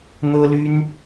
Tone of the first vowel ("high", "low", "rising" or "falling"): high